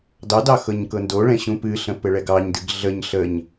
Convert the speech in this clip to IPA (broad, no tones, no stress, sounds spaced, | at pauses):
d ɑ d ɑ x ɤ ɲ k ɤ n d o ɭ ɛ̃ ɕ ũ p ɨ ɬ ə̃ p ɘ ɭ ɛ ɡ ɑ ɲ d ɨ ɡ ɮ ə ɲ ɬ ə ɲ